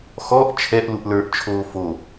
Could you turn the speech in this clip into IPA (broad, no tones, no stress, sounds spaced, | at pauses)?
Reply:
x ɔ ʔ t͡ʃʰ ɛ ʔ l u ʔ l ə˞ ʔ t͡ʃʰ oː f o